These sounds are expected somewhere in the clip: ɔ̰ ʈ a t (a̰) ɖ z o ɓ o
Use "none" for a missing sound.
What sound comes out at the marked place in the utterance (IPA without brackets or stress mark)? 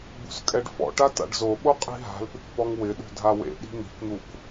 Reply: a̰